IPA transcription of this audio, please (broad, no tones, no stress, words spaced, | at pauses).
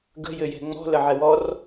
ɡə̤ jɘjɛ̤ŋ͡mɔ̤ ləʕɛwɔr